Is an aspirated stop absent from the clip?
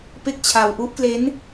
no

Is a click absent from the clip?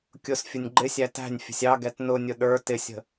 no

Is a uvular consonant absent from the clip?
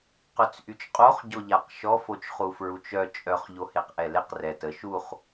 no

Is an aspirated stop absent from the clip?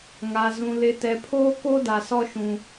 no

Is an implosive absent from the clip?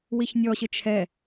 yes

